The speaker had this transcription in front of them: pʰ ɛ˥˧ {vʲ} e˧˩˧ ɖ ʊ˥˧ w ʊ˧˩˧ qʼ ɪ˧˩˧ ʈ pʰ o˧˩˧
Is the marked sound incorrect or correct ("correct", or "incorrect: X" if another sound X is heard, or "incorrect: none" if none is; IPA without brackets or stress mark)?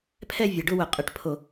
correct